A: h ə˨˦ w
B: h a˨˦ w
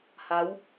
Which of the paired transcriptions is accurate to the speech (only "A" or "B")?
B